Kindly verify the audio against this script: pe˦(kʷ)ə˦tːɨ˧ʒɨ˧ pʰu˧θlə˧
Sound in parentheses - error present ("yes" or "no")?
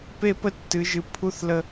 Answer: yes